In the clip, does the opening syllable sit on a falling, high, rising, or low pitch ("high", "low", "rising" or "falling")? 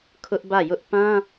high